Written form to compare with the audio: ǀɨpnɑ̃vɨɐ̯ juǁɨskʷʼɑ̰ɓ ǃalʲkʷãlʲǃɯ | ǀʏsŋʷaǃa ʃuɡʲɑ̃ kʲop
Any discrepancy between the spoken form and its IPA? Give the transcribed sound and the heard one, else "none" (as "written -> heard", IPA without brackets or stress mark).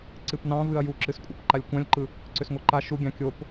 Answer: ɓ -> p